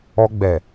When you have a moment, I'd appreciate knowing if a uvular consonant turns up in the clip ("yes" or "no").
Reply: no